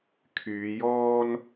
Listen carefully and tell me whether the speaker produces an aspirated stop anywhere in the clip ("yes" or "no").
yes